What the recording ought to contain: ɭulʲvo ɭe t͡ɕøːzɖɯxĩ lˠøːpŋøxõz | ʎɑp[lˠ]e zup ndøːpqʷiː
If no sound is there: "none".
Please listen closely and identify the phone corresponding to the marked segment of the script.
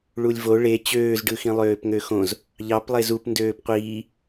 lˠ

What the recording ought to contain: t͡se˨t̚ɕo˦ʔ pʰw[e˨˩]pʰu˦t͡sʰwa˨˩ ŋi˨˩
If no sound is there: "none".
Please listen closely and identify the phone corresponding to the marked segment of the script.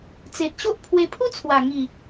e˧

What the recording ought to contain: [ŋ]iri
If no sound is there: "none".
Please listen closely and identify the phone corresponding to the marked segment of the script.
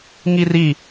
ŋ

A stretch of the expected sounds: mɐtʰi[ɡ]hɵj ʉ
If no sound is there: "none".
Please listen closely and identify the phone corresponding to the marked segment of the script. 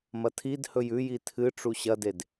d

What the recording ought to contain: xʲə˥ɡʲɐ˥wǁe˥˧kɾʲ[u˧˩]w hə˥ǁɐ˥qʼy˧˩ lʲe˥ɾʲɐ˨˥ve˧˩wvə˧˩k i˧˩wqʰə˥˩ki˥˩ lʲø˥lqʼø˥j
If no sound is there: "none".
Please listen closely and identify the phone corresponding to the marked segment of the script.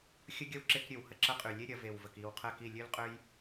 ø˧˩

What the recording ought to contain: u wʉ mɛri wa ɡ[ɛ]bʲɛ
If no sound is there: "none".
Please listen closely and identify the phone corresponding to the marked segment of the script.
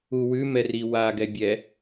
ɛ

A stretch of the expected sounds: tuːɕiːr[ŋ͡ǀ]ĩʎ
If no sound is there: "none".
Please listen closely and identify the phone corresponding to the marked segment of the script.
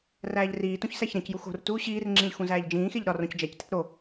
ŋ͡ǁ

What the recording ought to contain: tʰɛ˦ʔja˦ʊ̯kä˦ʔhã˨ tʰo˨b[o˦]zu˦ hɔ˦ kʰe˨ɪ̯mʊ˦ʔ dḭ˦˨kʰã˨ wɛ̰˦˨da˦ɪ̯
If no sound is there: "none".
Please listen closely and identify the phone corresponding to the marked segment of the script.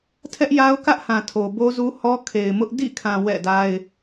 o˦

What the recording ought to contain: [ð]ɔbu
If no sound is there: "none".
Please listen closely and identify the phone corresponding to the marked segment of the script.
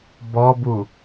b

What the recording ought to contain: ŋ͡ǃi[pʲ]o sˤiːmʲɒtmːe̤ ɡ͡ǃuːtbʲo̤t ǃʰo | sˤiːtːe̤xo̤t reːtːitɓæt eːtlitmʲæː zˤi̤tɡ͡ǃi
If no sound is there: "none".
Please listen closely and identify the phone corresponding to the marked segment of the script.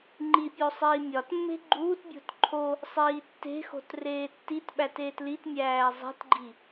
pʲ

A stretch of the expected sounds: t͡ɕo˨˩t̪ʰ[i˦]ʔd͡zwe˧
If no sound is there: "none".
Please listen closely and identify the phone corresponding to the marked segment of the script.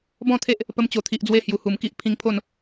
i˨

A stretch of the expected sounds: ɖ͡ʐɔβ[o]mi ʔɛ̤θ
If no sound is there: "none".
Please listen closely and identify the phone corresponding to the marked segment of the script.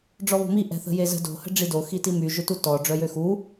o̤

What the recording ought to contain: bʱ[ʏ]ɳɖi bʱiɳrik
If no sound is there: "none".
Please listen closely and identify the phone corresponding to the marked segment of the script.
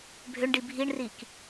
ʏ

